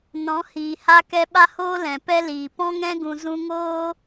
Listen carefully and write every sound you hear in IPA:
n ɔ̃˨˦ h iː˨ h a˧ k ɛ˧ ɓ a˦ h oː˦ l ɛ̃˨ p ɛ˦ l iː˨ p ɔ̃˧ ŋ ɛ̃˧ ɡ ũ˨ z ũ˧ ŋ oː˦

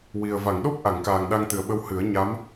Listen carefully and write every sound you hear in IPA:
w i˨˩ ə̯ v a˨˩˨ ŋ ɗ o˦˥ p̚ ʔ a˨˩˨ ŋ k aː˨˩ ŋ ɗ a˧ ŋ t̪ ɨ˨˩ ə̯ ɓ ə˧ w h ɨ˨˩˦ ə̯ ɲ a˧˥ m

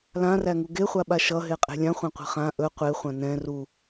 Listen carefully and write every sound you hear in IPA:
l ã r æ ŋ u ɡ e χʷ a ɓ a ʃ ʌ ɦ e qʼ e̤ lʲ ã χʷ æ̃ qʷ ɛ̤ χ ã ʔ ɵ qʷ e χʷ ã n ɛ̃ r u

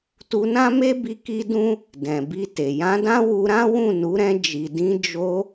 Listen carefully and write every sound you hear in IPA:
t u˧ n ã˦ m e˦ b i˧ k i˦ d ũ˦ | d ɛ̃˨ b i˧ t e˨ j ã˨˦ d ã˦ w u˧ ɾ ã˦ w ũ˦˨ n u˨˦ ɾ ɛ̃˧ d͡ʒ i˨ d ĩ˨˦ d͡ʒ o˧

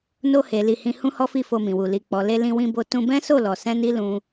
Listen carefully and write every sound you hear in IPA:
n o˧ h e˨ l i˨ h ĩ˧ h ũ˦ h ɔ˦ f i˦˨ f o˧ m ĩ˨ w u˨ l i˨ k͡p ɔ˨ l e˧ l ĩ˧ w ĩ˧ b o˧ t ũ˧ b ɛ̃˦ s o˦˨ l ɔ˧ s ɛ̃˦ n i˦ l ũ˧

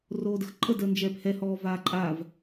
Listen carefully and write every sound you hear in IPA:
r oː d ə x ǃʼ ə d əː n d͡ʒ ɛː p h ɛ h ɔː v aː ǃʼ a v

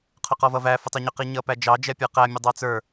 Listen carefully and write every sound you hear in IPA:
qʰ ʊ q ɔ v ʌ v æ f ʊ tˤ i ɲ ʊ q i ɲ ʌ p æ d͡ʒ ɑ d͡ʒ ɛ pʲ ə˞ q æ mʲ ʊ dˤ ɑ t͡s ə˞

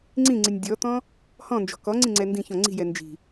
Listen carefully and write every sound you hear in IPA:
ŋ͡ǀ ĩ ŋ͡ǀ i nʲ dʲ ɔ t̪ ɔ̃ | h ɔ̃ n d͡ʒ ɔ̤ k ɔ ŋ͡ǀ ĩ ŋ͡ǀ ɛ n d ĩ ç ɔ̃ ŋ͡ǀ i̤ j ɛ n d͡ʒ i̤

